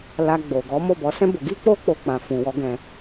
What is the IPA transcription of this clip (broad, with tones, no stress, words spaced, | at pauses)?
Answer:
la˧ ɡ͡bo˨ɡɔ˨˦ mo˦˨bɔ˨˦sɛ̃˦ bo˧ɡi˦ k͡po˦k͡po˧ k͡pã˨ fũ˨wɔ˧ɡɛ̃˧